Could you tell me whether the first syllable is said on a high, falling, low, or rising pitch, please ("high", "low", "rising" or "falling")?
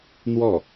falling